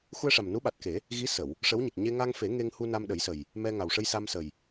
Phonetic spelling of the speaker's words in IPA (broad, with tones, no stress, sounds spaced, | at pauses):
x u˧ ə̯ ʂ a˨˩ m n u˧˥ ɓ a˨˩ t̚ k e˨˩˦ | ɣ i˧˥ s ə˨˩˨ w | ʂ ə˧˥ w ɲ i˨˩ k̚ ɲ e˧ ŋ a˧ ŋ f e˨˩˦ ŋ e˧ ŋ h u˧ n a˧ m ɗ ə˨˩˦ j s ə˨˩ j | m ɛ˧ ŋ a˨˩ w ʂ ə˧ j s a˧ m s ə˨˩ j